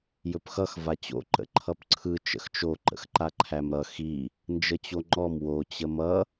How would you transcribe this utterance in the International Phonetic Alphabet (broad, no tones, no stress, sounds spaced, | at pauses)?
j ɵ p x ʌ x v a t͡ɕ o̰ ǃ ə̰ ǃʰ ʌ p ǀʰ ɯ t͡ʃ ə̰ x t͡ʃ o ǃ ə̰ x ǃ a ǃʰ æ m ɾ ʌ x i | n d͡ʒ ə t͡ɕ o ŋ͡ǃ ɔ m w o t͡ɕ ə m ʌ